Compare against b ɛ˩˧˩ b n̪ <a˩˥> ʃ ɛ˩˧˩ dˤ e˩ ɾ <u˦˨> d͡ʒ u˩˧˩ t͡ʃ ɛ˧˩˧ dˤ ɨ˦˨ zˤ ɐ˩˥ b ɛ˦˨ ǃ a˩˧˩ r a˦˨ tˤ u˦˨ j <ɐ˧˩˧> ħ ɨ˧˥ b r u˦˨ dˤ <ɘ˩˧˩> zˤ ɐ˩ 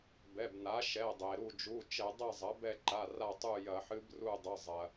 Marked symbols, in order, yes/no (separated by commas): yes, yes, yes, yes